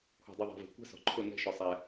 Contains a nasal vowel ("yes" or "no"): no